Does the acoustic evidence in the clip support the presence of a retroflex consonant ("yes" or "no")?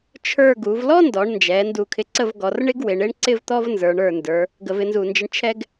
yes